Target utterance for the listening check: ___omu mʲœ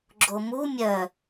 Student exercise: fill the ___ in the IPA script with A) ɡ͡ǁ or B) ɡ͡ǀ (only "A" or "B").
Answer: A